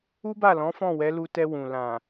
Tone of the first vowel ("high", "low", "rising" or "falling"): high